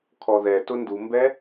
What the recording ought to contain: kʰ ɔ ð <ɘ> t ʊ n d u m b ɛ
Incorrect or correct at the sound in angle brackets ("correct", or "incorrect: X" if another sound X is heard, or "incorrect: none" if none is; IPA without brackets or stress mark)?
incorrect: ɛ